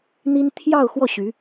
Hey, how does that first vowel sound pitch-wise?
high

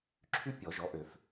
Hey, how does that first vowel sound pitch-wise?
high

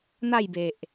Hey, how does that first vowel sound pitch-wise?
falling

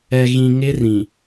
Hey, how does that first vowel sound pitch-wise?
low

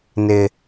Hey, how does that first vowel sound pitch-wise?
low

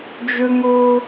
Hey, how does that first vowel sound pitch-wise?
high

